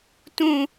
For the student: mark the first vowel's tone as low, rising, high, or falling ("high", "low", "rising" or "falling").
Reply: high